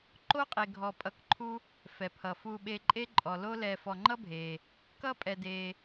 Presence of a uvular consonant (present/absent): present